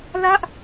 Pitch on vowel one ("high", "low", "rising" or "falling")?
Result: falling